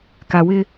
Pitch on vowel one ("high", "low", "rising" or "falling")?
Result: low